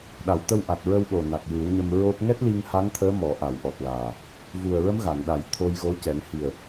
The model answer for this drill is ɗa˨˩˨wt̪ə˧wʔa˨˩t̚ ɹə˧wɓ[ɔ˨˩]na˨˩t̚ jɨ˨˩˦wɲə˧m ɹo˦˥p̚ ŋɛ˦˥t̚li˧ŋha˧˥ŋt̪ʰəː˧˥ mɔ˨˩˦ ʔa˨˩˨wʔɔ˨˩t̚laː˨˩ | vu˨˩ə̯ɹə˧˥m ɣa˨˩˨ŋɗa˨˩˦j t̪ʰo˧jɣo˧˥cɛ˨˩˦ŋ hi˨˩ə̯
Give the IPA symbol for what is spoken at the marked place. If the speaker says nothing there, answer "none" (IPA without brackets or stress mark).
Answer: o˨˩